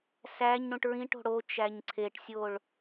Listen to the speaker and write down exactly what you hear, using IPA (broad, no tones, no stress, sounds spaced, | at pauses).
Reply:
s æ ɲ ɽ ũ ʈ ɹ ĩ ʈ o̤ ɽ o t͡ʃ æ ɲ ǀʰ e ʈ sʲ o ɭ